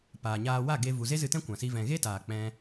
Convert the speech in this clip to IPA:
p aː˨ ɲ aː˧ w a˦˨ ɡ e˦ v u˨ z e˦ z ɨ˧ t ɛ̃˦ kʷ ã˨ s i˧ v ɛ̃˨ ɣ e˦ t aː˨ k͡p ɛ̃˧

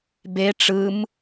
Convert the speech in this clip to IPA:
b e ʈ͡ʂ ɯ m

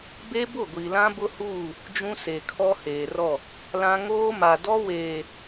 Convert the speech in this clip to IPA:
b e˦ b ʊ˦˨ ɡʷ i˨ l ã˦ b ʊ˦ h uː˦˨ | d͡ʒ ũ˦ s e˨ kʰ ɔ˦ h eː˨ r ɔ˦˨ | l ã˦ ŋ oː˦ m a˨ d ɔ˦ w eː˨

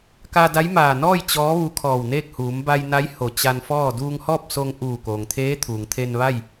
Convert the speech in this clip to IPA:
k a˧ d a˧˥ j m aː˧˩ n ɔː˥˨ j t͡ɕ ɔː˧˥ ʋ u˧˥ kʰ ɔː˧˩ w n eː˥˨ k̚ h uː˩˧ m b a˧ j n a˧˥ j h o˧˩ t͡ɕ a˧ n f ɔː˥˨ d uː˧ ŋ h ɔː˥˨ p̚ s o˧ ŋ ʔ uː˧˩ k oː˩ ŋ t̪ʰ eː˧˥ t̪ʰ uː˩ ŋ t̪ʰ e˧ n ʋ a˥˨ j

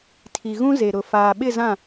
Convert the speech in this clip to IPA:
tʰ i˨ ɣ ũ˦ z e˨ ɾ ʊ˨ f aː˨ ɓ ɪ˦˨ z ã˦˨

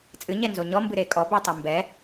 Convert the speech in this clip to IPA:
t͡sʼ ɨ ɲ ɛ n z o ɲ ɔ m b ɨ ɾ e kʼ ɔ b e tˤ i m b ɛ

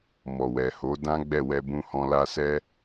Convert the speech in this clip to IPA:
m ɔ˨ w ɛ˨ h o˨˦ d ã˦ ɡ͡b ɛ˦˨ w ɛ˧ b ũ˧ h ɔ̃˧ l a˧ s ɛ˦

